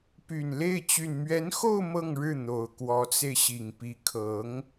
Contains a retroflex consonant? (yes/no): yes